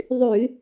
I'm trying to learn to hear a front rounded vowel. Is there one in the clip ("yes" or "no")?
yes